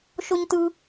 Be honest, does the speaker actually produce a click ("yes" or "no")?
no